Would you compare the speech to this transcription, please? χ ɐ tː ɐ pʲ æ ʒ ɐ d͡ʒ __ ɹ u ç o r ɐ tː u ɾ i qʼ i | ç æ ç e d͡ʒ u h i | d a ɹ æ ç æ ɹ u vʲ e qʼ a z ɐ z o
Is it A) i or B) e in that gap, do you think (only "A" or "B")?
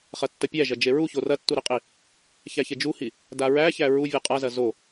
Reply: B